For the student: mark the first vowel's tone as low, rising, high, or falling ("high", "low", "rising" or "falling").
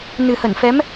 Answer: low